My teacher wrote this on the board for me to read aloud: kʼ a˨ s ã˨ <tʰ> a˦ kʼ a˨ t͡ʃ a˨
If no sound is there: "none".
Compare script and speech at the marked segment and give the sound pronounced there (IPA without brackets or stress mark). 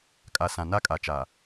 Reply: n